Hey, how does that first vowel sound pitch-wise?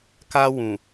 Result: high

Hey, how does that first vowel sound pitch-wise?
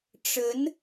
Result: rising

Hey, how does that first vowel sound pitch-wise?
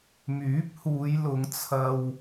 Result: rising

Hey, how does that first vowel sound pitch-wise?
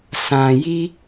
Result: low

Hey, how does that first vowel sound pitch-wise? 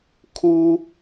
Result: high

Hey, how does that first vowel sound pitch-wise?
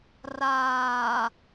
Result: low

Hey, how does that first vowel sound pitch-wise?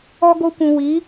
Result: high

